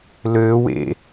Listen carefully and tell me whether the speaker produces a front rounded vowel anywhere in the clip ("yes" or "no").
yes